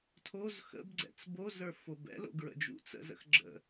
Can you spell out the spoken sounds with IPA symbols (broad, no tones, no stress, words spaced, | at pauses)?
tʰoz xə̰bɡ͡ǀɛ̰t͡s bozə˞ fobɛ̰lo̰ ɡɹə̰d͡ʒṵt͡sə̰zə̰x ɡ͡ǁə̰